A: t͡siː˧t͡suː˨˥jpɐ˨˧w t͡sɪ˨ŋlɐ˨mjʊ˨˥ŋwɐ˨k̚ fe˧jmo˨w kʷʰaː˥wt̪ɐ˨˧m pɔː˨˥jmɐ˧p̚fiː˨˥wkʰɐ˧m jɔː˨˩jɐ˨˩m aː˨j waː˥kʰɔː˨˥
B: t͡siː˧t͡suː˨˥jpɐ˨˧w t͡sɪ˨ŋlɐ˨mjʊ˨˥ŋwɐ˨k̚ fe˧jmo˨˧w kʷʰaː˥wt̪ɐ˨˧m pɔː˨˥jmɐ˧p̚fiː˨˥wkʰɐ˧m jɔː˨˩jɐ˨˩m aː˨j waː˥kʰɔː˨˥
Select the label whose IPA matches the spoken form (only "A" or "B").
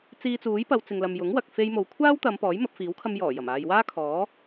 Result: B